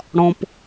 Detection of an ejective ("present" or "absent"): absent